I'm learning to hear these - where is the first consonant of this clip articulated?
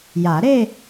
palate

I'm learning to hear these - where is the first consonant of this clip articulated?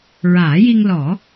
tongue tip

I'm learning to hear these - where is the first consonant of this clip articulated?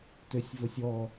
tongue tip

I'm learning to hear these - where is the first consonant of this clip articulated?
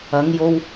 velum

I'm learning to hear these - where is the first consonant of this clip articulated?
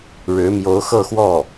retroflex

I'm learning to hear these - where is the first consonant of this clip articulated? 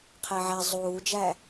uvula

